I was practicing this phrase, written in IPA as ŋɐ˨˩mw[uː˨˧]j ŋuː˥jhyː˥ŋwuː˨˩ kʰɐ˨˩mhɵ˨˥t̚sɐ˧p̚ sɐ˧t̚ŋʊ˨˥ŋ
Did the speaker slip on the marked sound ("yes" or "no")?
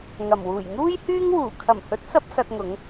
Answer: yes